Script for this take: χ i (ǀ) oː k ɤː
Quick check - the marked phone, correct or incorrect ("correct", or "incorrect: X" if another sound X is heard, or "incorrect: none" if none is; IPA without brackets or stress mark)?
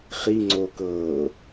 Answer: incorrect: ŋ͡ǀ